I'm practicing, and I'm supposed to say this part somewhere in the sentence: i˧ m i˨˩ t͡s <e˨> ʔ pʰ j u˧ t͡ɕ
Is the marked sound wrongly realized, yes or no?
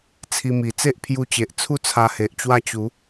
yes